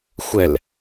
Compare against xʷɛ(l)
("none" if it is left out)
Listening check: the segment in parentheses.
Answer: l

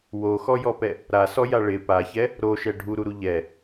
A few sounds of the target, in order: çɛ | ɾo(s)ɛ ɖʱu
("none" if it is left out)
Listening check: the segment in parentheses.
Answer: ʃ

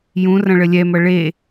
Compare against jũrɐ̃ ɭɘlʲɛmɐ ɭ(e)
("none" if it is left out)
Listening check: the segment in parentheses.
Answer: e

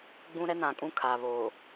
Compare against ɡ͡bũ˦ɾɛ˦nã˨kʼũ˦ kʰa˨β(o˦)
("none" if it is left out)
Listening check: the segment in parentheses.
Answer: o˨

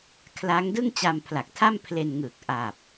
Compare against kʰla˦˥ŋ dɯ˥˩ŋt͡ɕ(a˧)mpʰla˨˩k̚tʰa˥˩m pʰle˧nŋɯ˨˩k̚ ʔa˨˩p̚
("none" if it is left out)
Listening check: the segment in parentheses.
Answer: a˧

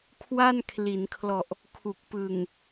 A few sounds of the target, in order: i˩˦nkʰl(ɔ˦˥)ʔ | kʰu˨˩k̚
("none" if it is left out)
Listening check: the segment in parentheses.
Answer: ɔ˨˩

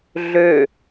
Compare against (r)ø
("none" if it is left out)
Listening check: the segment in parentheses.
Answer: ɮ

